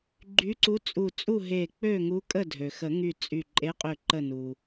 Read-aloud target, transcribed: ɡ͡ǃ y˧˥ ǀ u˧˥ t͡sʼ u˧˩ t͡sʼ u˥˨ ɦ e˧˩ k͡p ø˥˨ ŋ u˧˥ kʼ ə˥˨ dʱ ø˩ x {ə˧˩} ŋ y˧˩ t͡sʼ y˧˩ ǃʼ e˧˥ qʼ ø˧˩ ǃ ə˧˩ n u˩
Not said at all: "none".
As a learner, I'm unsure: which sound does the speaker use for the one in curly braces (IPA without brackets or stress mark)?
ə˨˩˦